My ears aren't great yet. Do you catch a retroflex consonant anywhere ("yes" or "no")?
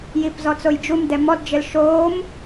no